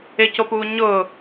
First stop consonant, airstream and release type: plain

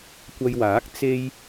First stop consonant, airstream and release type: plain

